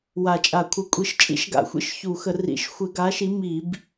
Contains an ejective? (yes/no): yes